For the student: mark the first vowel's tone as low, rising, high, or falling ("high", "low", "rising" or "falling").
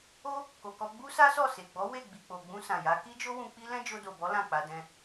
high